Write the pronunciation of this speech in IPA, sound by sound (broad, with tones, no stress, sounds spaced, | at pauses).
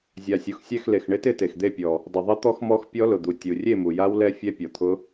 zʲ a˨ sʲ u˨ x sʲ ɛ˥˨ x l e˨ x ɳ ɪ˦˥ t ɪ˥˨ t e˨ x d̪ e˥˨ pʲ ɔ˨ | dˤ ʊ˨ ðˤ ɪ˦˥ t̪ ɔ˦˥ x m ɔ˦˥ x pʲ ɔ˦˥ l ʊ˨ d̪ u˨ tʲ u˨ rʲ e˥˨ m u˨ j a˦˥ w l ɛ˦˥ fʲ ɛ˦˥ pʲ ɔ˨ t̪ʰ ʊ˦˥